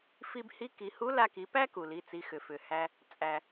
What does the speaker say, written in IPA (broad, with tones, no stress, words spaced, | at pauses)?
fi˧bhi˧˥ ki˩˧hu˧˥ la˧ki˩˧pæ˥ ku˩li˩˧t͡si˩˧ xʏ˩fʏ˩hæ˧ | t͡sʼæ˩